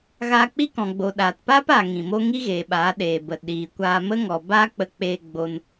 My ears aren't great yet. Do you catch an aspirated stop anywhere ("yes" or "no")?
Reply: no